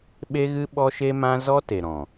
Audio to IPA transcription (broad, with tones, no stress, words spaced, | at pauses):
ɓe˦ɣɨ˦ ɓɔ˦ʃe˦mã˦ zɔ˦te˨ɾɔ̃˨